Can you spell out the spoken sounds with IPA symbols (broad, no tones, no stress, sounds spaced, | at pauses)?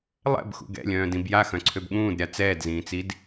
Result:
lˠ ɛ̰ b x ṵ ɡ ɛ̰ lʲ œ̃ː d ĩ b j a x œ̃ ǀʰ ø b ɠ ũː d ɾʲ a t͡s ɛː d z ĩː t͡s i d